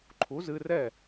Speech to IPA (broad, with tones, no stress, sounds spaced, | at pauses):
ǃʰ u˩˥ z ɨ˧ r ɛ˥˩